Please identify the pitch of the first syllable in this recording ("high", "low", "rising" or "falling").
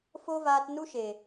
high